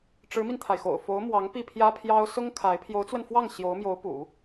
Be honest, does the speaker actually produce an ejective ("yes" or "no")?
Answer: no